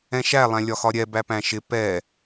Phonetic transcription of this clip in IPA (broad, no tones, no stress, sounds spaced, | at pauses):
ɛ̃ ʃ æ lˠ æ̃ lʲ ɒ x ɒ ɾʲ ɛ b æ p æ̃ ʃ ɪ p ɛ